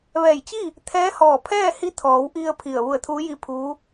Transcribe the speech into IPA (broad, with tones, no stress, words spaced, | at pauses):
ʋɛː˧˩jt͡ɕi˥˨ | t̪ʰɛː˧˥hɔː˧˩ pʰɛː˥˨hi˧˥t̪ʰɔː˩˧wʔi˧ə̯ pʰi˧˩ə̯ ʋu˧˩ə̯t̪ʰuː˧˥ji˧˥pʰuː˧˥